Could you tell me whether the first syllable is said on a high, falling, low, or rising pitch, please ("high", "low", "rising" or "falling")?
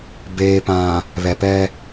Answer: low